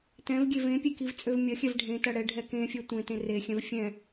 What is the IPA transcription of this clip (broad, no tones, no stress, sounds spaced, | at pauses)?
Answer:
t ɛ̃ v ɡʲ e v ẽ pʲ e k i v t͡sʼ ø v mʲ ɐ xʲ ɛ v ɖʱ ẽ t ɐ ɽ ɛ ɖʱ ɛ k ẽ fʲ ɛ tʷ ẽ t ẽ r e xʲ ɛ̃ v fʲ ɛ̃